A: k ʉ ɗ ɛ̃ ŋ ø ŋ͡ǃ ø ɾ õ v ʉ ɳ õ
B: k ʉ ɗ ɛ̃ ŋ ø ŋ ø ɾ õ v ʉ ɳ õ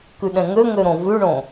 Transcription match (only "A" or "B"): B